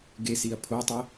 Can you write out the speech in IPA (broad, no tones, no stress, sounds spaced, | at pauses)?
ɡ e s i ɐ̯ pʰ o tˤ ə